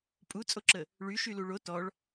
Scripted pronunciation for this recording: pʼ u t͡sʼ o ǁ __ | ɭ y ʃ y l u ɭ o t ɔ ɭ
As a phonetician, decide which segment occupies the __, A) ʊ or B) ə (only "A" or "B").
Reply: B